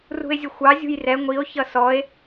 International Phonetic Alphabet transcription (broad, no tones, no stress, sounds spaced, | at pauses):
r ṳ e̯ zʲ ə xʷ ɑ zʲ ṳ j r ɛ ŋʷ i o̯ ç ʌ s ɔ e̯